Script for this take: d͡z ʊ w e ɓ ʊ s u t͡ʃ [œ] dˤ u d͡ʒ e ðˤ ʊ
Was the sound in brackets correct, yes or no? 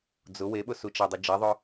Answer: no